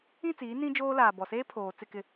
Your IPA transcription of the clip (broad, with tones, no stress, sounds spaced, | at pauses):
ĩ˦˨ t͡s iː˨˦ n ĩ˦ d͡ʒ oː˦ l aː˨ b ɔ˨ s eː˦ pʰ oː˨ t͡s ɪ˦˨ k ɪ˦˨